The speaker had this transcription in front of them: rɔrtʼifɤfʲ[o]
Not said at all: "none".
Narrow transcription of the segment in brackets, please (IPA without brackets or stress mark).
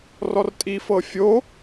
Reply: o